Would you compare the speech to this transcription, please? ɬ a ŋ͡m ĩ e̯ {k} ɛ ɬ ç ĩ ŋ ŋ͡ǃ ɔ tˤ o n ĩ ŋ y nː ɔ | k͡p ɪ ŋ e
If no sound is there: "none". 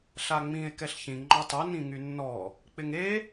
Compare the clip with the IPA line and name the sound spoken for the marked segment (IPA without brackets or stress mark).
k